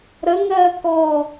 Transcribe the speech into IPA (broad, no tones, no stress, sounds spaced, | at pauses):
ɾ ə ŋ ɜː k ɔ